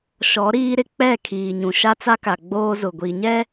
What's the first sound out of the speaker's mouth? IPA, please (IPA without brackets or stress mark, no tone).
ʃ